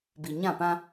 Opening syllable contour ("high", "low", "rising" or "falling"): low